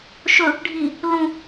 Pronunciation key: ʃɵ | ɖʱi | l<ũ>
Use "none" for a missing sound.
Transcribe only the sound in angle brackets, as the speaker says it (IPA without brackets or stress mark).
ũ